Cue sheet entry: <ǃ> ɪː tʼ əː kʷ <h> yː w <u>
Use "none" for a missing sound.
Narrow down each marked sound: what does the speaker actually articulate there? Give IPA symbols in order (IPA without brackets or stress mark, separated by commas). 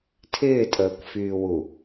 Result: tʰ, f, u